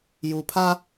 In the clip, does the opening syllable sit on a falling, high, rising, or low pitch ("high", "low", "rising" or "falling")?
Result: low